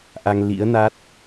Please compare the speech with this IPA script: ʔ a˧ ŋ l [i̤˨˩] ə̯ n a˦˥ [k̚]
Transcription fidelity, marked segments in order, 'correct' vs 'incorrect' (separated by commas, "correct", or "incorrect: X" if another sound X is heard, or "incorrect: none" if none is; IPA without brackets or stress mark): incorrect: ḭ˧˥, incorrect: t̚